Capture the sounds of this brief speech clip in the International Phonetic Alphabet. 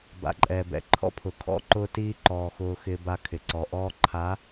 b a̰˨ ǃʼ ɛː˨ b ɛ̰˨ ǃʰ ɔ̰˦ pʰ ʊ˨ kʰ ɔ̰˦ ǃ ʊː˦ t iː˦ ǃ ɔː˨ x ʊː˦ x ɪː˦ b a˦ kʰ ɪ˨ ǀ ɔ˨ ʔ ɔː˦ ǃʰ a˨˦

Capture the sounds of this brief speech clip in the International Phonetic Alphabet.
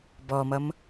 b ɔ m ʌ m

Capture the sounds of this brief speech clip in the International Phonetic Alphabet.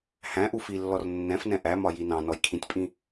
h æ̃ ʔ u f i lː ɔ r nː ɛ̃ f n ɛ̃ ʔ æ m ɒ j i n ɑ̃ n ɔ j kʰ ĩ tʲ pʼ ĩ

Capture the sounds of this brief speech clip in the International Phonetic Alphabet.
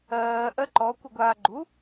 ɜː ʔ ɜ ǃ ɔ kʷ ɯ ɡʷ aː ɡ͡ǃ u

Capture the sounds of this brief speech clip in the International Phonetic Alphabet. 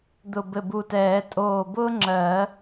d̪ ʊ˧˩ b ɘ˧˩ b u˧˩ t ɛː˨˩˦ tʼ oː˧˩ b ʊː˥ ŋ͡ǁ ɜ˨˩˦

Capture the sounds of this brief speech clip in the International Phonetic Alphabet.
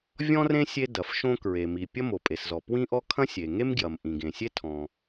vʲ ɔ̃˥ r ẽ˥ sʲ e˥ d ɐ˩ f ʃ õ˥ k ɹ e˩ m i˩ pʲ ɐ˥ m o˩ pʼ e˩ s z ɔ˩ p w ĩ˥ ʔ ɔ˥ kʰ ɐ̃˥ sʲ e˩ ŋ e˥ m ɡ j ɐ˩ m ʔ ĩ˩ ɡ ẽ˩ sʲ e˥ tʰ ɔ̃˩

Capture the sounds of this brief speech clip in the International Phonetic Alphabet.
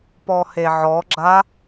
p ɔ h e ʕ ɔ ɡ͡ǁ a

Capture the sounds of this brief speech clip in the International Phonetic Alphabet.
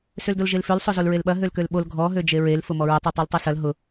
s ø l d o l ʒ e l f ø l sˤ o z o l ɹ e l ɓ ɐ ɦ ø l k ø l ɓ o l ɡʱ ɔ ɦ ø d͡ʒ e ɹ e l f ʊ m ɔ ɹ ʊ tˤ u tˤ u l tˤ y s ɐ l ɦ ʊ

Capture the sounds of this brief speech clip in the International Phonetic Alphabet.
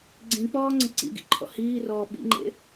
ɡ͡ǀ ĩ k͡p ɔː ŋ͡ǀ ə̃ ǀ ḭ ɡ ḭ ǃʰ ɔ̰ h iː r ɔː ɓ ḭ ŋ͡ǃ ḛ

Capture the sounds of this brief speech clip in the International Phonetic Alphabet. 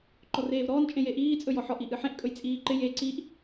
ǃ ɔ r eː v ɾ ɔː n t͡ʃʼ ẽ j e ʔ iː t͡sʼ ɵ j ɔ ħ ɔ ʔ i ʔ ɨ ħ ẽ ʔ kʼ ɵ j t͡sʼ iː ǃ ɪ j e ǀ i ʔ

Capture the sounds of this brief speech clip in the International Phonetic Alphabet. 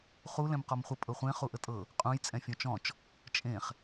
χ u l ɛ̃ m q ɔ m χʷ ə pʼ ɤ χʷ ẽ χ u ʔ ə tʼ ɤ | qʼ ũ j t͡sʼ ɛ̃ fʲ ɔ̃ t͡ʃ ɔ̃ t͡ʃ | t͡ʃʼ ẽ χ

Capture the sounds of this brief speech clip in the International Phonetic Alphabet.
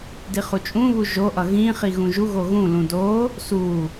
d i χ u t͡ʃʼ ũ β u ʒ o ʔ ʌ ɣ ĩ χ i ɣ ũ ʒ u ɣ o ɣ ũ l ũ d o | s u

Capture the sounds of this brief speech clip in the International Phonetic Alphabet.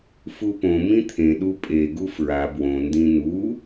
f u p õ m ĩ t̪ʰ ẽ ɗ u pʼ e ɡ u f ɹ a b w õ n d ĩ n u

